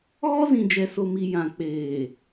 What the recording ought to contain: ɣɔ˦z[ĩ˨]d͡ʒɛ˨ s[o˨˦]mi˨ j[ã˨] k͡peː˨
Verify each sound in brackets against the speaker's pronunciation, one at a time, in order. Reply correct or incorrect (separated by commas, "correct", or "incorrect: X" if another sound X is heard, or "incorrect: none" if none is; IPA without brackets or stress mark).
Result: correct, incorrect: o˨, correct